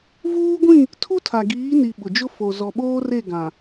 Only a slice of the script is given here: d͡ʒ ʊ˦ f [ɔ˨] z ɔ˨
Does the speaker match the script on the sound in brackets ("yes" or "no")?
no